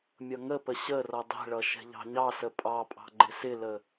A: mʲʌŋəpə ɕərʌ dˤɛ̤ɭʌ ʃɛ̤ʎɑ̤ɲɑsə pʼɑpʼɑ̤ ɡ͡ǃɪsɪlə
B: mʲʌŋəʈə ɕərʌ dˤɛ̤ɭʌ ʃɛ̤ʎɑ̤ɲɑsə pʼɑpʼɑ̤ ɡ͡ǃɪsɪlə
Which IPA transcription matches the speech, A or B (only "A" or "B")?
A